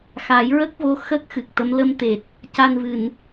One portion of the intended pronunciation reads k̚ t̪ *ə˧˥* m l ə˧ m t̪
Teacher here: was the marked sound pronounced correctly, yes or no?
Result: yes